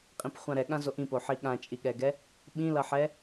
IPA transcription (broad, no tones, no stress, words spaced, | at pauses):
qʼĩpχʷãɾɛɠã zoʔĩpoħi ɠãt͡ʃʼiɠɛɡɛ | ɓĩlʌħɛ